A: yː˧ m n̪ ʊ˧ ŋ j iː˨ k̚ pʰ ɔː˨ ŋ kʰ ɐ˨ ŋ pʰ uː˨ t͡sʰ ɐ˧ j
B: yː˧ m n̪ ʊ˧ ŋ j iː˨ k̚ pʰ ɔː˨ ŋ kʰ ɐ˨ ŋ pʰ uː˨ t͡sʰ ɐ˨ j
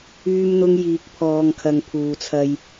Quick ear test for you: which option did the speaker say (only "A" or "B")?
A